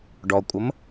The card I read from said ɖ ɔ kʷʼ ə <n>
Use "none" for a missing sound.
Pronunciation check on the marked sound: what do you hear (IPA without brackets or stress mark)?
m